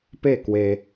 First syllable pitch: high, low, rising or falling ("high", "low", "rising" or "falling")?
falling